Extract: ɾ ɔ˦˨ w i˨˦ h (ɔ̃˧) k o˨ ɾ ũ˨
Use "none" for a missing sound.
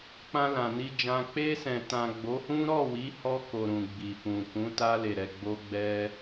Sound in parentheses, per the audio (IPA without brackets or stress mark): ɔ˧